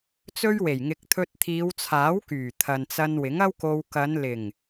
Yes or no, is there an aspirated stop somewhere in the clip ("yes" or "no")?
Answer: yes